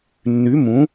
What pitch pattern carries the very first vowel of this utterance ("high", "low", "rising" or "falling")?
rising